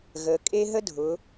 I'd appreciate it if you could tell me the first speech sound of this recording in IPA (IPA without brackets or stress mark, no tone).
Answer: ɣ